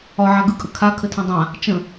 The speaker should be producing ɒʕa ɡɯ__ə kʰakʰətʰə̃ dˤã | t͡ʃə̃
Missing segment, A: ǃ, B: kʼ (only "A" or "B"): B